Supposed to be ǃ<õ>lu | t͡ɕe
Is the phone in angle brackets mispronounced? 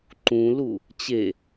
yes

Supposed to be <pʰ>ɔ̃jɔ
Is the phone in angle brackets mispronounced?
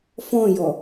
yes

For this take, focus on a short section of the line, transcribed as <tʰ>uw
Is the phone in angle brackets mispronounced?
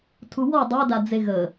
no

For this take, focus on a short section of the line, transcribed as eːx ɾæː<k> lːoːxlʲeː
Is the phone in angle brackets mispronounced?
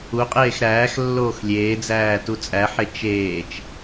yes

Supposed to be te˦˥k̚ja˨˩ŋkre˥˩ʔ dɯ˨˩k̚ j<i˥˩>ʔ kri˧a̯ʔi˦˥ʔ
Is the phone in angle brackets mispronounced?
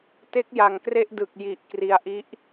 yes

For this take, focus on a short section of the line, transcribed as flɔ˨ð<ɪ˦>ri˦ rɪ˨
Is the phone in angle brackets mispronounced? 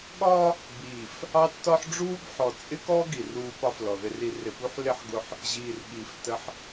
no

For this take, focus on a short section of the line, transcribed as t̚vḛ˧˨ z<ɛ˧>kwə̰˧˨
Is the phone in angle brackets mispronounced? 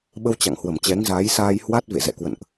yes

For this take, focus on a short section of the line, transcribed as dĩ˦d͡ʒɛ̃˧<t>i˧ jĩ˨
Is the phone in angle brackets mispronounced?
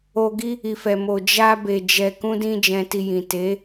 no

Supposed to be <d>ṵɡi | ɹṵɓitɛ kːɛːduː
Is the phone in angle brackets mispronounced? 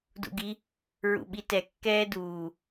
no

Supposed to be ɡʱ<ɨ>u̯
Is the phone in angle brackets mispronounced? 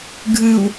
no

